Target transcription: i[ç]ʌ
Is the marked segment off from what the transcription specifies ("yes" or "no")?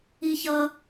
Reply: no